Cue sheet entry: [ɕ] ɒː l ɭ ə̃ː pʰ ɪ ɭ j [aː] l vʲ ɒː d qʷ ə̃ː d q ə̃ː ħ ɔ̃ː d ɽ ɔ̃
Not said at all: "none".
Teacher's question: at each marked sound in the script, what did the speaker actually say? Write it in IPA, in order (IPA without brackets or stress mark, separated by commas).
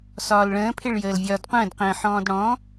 s, əː